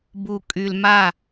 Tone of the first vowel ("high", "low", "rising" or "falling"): low